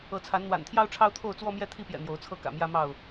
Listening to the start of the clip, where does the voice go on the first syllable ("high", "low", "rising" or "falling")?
rising